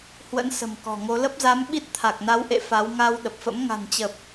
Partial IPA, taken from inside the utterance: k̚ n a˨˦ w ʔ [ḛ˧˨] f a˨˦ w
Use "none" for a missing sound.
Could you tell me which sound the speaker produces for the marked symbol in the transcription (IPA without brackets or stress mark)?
ḛ˧˨